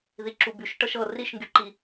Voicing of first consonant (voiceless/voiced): voiced